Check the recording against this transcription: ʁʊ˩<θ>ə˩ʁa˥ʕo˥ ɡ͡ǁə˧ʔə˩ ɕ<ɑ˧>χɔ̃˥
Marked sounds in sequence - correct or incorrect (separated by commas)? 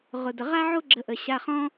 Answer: incorrect, incorrect